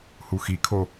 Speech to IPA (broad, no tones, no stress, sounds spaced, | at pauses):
h u x i kʰ o